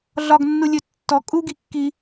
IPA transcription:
ɮ ɒ ɡ nː u lʲ ɵ tː ɔ kʼ u ɡ i kː i

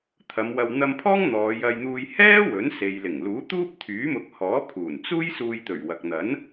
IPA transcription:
t̪ʰ ɐ˨˧ m w ɐ˧ w n̪ ɐ˧ m pʰ ɔː˥ ŋ n̪ ɔː˨˧ j ɐ˧ j n̪ uː˧ j h ɛː˥ w ɵ˨˥ n s e˨ j l ɪ˨˩ ŋ l uː˨˥ t̪ uː˥ p̚ t̪ʰ yː˨˥ m ʊ˨˥ k̚ h ɔː˨˥ pʰ uː˨˩ n t͡s uː˥ j s uː˧ j t̪ ɵ˨˩ ɥ w ɐ˨ k̚ n̪ ɐ˨˥ n

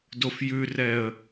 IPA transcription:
d o f j ʉ r ɛ ə̯

